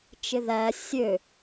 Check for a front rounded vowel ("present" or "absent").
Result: present